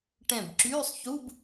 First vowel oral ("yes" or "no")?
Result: no